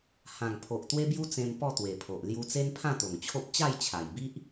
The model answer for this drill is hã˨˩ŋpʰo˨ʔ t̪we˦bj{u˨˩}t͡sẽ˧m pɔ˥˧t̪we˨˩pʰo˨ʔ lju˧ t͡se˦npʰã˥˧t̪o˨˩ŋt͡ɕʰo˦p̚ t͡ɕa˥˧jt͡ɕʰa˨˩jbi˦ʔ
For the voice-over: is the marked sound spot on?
no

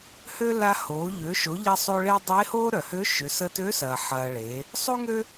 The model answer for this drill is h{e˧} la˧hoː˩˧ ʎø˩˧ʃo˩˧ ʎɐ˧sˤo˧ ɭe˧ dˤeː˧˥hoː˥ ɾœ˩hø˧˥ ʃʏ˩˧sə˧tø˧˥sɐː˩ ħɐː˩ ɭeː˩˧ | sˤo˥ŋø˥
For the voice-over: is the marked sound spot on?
no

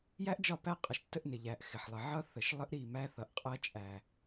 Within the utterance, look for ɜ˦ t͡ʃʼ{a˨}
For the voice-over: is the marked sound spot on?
no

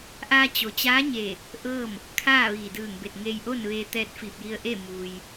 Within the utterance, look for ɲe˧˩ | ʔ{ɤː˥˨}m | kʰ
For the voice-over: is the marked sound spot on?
yes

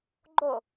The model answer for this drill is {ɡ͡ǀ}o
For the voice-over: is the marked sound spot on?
no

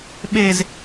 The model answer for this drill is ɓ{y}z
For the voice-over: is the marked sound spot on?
no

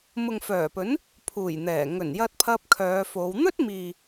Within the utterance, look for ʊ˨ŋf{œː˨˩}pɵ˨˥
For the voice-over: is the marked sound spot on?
yes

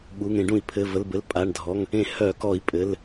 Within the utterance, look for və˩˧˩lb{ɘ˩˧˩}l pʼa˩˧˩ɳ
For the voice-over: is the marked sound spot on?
yes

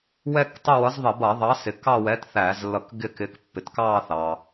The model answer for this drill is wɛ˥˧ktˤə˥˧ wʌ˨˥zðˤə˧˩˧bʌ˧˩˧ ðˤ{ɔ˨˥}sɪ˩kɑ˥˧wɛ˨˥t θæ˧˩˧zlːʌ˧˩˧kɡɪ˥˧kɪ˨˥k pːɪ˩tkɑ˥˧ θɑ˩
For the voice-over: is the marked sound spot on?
no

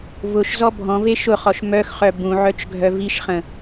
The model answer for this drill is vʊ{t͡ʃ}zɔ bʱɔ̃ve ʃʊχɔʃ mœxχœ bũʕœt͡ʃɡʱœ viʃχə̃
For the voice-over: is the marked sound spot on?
no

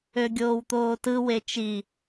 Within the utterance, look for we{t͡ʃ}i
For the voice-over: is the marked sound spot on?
yes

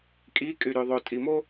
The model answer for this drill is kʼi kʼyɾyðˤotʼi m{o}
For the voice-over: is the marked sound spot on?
yes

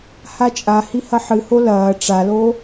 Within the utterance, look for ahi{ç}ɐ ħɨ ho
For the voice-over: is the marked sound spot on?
no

